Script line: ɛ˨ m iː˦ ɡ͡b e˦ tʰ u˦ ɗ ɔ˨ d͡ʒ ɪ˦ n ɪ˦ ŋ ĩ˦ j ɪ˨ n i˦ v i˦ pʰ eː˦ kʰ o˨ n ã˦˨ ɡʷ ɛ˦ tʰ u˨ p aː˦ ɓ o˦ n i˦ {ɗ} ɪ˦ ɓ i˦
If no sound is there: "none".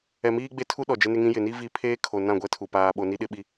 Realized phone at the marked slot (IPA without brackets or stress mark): ɗ